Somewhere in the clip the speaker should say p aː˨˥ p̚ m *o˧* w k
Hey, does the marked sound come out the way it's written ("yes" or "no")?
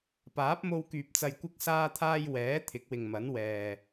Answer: yes